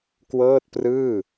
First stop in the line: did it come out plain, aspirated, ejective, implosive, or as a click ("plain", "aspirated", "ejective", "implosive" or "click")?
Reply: plain